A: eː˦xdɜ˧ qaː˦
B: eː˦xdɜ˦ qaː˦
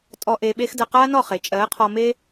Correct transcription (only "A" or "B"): A